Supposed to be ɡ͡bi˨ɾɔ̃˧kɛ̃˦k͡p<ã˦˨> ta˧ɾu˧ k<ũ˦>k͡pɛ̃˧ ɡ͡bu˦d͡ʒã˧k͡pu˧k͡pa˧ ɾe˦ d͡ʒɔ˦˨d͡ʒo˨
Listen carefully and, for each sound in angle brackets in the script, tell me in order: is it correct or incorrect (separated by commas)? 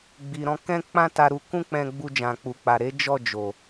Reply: incorrect, correct